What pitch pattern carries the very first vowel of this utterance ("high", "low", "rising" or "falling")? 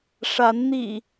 rising